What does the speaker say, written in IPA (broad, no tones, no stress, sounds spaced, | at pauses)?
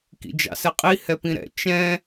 k ḭ d͡ʒ ɑ̰ s ɛ qʼ i h ɛ p ĩ ɾ ɛ̰ t͡ʃ ɛ̃